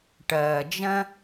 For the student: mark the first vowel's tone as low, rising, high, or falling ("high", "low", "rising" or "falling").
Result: low